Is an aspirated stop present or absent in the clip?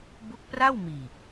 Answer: absent